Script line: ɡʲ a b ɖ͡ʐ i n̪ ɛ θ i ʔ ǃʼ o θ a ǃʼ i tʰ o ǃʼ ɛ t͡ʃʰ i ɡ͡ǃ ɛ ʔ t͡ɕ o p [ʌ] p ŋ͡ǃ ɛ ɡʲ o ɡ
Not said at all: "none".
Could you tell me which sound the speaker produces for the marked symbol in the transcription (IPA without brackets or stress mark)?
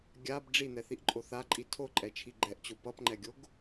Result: ʌ